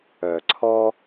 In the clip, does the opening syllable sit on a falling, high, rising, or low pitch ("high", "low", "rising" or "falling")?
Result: low